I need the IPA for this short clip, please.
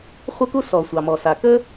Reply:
χʷ ə˥ k u˥ s ɔ˩ sʷ ɑ˩ m ɔ˩ s a˩ k ə˥

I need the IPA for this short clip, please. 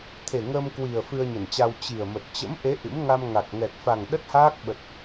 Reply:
t̪ʰ e˨˩ ŋ əː˧ m k w i˨˩ ə̯ f ɨ˧ ə̯ ɲ ə˧˩ n t͡ɕ a˧ w t͡ɕ i˨˩ ə̯ m ə˨˩ t̚ t͡ɕ ə̰˧˥ m ʔ e˨˦ ʔ ɨ̰˧˥ m ŋ a˧ m ŋ a˨˩ k̚ ŋ ɛ˨˩ k̚ f a˨˩ ŋ ɗ ə˦˥ t̚ h aː˦˥ k̚ ɓ ə˨˩ t̚

